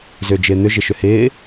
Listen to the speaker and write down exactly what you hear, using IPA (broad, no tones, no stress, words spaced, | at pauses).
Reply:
zʏːd͡ʒɪːn̪ʏ ʒɪʃʏhɪː